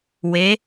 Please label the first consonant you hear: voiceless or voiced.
voiced